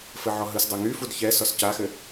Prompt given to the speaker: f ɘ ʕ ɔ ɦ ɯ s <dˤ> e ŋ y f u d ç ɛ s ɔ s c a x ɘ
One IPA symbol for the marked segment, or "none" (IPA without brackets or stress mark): dˤ